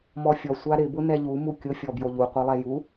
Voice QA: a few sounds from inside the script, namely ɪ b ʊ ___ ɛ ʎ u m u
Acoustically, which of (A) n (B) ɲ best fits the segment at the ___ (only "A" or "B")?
A